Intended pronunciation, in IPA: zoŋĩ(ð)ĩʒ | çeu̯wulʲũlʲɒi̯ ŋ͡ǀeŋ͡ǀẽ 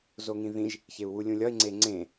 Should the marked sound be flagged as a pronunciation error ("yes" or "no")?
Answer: no